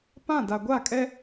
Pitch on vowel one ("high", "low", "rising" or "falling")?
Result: falling